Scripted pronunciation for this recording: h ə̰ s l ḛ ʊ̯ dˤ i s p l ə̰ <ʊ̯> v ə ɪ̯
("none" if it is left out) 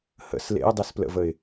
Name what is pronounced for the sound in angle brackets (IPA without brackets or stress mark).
none